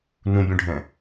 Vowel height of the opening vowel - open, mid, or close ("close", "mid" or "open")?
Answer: close